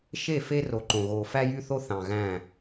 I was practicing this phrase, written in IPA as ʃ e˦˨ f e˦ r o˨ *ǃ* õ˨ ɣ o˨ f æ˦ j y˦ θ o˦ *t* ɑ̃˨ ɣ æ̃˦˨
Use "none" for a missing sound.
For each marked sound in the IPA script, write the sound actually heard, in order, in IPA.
ǃ, θ

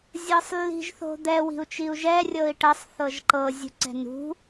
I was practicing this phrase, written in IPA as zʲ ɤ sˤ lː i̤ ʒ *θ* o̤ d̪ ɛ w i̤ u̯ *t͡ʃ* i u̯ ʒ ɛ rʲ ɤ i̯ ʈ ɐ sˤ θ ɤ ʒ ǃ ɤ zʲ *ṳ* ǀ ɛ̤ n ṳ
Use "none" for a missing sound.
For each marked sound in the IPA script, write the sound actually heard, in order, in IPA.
θ, t͡ʃ, ṳ

